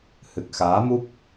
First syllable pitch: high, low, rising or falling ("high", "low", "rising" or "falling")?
low